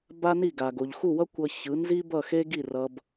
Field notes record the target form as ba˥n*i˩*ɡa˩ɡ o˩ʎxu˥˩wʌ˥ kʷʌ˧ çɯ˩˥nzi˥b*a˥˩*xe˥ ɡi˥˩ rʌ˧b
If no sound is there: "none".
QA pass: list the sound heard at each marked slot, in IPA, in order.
i˥˩, ʌ˥˩

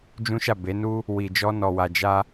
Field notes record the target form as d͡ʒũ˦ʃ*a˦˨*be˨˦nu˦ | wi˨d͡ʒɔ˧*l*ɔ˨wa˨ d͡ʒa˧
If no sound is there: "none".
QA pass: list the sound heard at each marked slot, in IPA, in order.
a˦˨, n

